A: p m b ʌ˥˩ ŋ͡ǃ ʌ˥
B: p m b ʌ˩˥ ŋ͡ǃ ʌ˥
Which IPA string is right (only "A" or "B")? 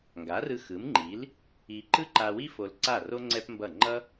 A